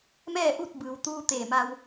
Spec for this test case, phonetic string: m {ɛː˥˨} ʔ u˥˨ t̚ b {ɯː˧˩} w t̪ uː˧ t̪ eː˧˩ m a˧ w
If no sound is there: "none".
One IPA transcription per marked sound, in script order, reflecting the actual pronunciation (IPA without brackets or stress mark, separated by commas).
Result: ɛː˥˨, ɯː˩